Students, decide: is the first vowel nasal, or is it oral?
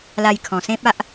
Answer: oral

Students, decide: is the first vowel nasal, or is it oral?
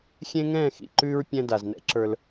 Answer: nasal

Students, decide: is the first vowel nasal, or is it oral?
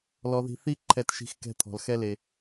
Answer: oral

